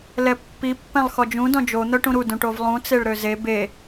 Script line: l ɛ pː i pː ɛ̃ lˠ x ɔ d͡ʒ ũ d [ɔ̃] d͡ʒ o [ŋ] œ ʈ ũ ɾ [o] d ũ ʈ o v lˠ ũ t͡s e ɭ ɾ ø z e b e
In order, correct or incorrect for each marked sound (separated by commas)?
correct, incorrect, incorrect